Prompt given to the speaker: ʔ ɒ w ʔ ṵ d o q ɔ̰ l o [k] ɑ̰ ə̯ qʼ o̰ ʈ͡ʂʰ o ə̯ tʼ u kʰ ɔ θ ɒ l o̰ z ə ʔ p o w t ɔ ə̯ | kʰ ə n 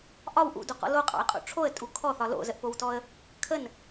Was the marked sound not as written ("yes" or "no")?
yes